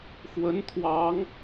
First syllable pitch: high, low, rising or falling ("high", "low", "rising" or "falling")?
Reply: rising